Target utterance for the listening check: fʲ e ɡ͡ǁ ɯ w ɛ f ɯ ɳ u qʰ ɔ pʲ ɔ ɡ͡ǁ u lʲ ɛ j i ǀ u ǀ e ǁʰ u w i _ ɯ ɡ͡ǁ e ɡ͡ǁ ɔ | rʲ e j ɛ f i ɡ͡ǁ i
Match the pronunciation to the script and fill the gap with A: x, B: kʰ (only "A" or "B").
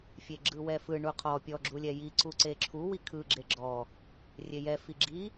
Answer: B